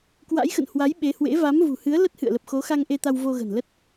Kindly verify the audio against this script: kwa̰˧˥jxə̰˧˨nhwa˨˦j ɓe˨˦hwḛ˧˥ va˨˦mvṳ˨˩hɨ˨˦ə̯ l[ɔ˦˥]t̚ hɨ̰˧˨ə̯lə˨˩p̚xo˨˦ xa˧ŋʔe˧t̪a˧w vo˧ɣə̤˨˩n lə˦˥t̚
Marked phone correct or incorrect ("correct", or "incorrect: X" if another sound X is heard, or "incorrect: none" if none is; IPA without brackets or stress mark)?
incorrect: ə˦˥